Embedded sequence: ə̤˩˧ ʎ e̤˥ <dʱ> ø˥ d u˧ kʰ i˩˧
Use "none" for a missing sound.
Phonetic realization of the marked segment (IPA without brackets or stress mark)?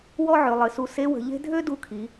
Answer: dʱ